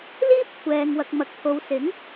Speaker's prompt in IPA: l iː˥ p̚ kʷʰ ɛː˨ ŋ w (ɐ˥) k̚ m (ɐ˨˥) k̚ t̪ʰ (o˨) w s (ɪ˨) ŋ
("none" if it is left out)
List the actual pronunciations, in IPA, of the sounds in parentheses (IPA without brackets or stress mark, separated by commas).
ɐ˨, ɐ˨, o˨, ɪ˨˥